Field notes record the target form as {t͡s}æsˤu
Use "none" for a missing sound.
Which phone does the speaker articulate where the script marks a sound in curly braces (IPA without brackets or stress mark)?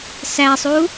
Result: s